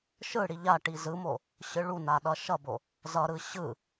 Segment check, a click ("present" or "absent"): absent